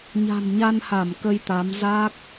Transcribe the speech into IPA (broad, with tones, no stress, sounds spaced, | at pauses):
ɲ a̤˨˩ n ɲ a˧ n h a˧˩ m k ə˧ j t̪ a˨˦ m z a˦˥ k̚